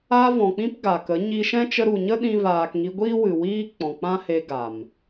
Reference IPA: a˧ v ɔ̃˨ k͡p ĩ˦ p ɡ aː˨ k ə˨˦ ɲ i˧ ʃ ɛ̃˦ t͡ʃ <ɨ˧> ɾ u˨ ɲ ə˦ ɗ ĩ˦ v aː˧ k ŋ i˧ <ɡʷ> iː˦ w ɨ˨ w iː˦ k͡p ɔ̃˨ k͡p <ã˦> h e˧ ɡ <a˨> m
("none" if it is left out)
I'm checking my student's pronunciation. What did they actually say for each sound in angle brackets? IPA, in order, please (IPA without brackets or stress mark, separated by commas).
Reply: ə˧, ɡʷ, ã˦, a˨